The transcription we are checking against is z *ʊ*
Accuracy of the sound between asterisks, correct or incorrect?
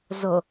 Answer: correct